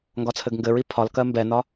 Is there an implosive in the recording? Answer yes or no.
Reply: no